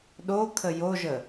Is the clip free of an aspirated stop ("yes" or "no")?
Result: no